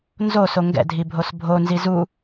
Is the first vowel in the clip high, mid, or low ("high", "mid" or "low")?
mid